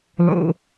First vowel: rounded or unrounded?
rounded